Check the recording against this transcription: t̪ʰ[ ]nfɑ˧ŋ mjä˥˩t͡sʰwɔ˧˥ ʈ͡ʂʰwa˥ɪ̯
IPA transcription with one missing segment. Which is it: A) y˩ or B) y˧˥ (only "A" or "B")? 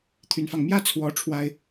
B